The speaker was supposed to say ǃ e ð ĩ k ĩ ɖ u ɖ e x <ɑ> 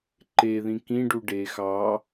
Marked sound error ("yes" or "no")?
no